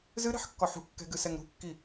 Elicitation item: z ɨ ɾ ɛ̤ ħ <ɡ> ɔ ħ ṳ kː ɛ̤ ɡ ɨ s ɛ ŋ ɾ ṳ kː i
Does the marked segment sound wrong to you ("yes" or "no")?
yes